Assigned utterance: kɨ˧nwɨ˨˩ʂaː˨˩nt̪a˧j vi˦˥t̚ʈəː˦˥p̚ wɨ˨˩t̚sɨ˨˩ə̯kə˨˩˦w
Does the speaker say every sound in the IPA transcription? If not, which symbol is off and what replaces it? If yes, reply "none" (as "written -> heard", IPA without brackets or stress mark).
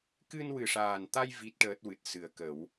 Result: p̚ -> t̚